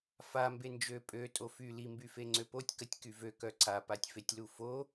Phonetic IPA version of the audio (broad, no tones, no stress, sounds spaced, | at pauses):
f a m b e n d͡ʒ ø pʼ ø tʼ o f y l i m b y f e ŋ͡ǀ ø p o tʲ k ə tʲ k y v ø k œ ǀ a p a tʲ f e tʲ l u f o